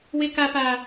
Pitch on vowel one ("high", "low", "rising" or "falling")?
high